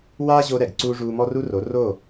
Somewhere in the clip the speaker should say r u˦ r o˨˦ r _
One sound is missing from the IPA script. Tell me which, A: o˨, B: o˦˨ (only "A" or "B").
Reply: B